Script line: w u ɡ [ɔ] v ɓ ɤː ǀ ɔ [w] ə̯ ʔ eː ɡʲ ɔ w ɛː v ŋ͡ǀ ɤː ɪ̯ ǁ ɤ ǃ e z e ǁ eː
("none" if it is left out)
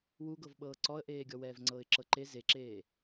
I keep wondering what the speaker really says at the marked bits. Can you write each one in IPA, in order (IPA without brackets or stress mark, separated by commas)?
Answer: ɤ, none